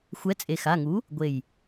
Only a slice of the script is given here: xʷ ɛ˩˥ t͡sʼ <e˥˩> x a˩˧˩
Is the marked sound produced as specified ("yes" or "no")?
no